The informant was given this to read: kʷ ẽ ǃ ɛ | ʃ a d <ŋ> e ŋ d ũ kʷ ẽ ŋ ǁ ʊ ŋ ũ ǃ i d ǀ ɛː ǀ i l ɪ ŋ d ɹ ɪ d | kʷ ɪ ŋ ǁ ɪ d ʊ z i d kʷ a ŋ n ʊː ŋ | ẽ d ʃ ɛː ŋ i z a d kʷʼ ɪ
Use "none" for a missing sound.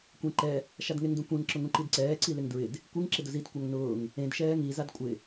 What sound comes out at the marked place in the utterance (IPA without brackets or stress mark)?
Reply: ŋ